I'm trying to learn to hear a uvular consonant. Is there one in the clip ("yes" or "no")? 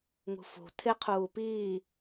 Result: yes